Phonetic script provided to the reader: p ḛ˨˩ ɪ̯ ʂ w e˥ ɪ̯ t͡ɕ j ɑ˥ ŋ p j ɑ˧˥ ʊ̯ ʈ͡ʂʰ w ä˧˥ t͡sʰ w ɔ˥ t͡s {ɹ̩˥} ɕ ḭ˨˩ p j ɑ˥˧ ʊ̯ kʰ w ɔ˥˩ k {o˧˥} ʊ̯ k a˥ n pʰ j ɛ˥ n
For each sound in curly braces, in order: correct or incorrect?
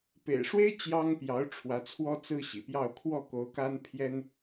correct, correct

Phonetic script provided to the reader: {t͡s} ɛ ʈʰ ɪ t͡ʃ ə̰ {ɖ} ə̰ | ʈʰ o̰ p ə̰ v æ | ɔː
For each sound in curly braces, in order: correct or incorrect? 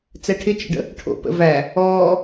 correct, correct

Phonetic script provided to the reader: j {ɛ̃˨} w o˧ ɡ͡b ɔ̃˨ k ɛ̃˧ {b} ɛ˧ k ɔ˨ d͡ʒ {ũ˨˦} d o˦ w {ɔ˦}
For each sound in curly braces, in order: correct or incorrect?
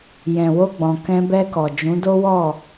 correct, correct, correct, incorrect

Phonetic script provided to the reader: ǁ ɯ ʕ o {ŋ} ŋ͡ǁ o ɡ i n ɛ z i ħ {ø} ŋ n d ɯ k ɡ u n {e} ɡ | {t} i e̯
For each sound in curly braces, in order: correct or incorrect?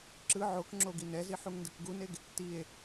incorrect, incorrect, correct, correct

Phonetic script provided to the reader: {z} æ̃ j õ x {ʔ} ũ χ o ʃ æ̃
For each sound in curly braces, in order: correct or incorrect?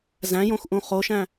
correct, correct

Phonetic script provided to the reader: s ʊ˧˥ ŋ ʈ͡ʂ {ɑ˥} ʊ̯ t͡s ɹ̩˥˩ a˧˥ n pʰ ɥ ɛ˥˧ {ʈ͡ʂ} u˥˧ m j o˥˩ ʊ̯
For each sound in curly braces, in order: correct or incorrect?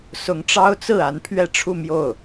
correct, incorrect

